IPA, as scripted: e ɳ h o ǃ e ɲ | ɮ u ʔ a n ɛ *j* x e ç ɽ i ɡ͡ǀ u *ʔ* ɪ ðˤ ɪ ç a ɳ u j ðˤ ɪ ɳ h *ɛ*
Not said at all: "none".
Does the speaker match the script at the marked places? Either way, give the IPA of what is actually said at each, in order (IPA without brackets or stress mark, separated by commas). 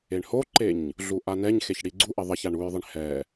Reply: ɲ, ʔ, ɛ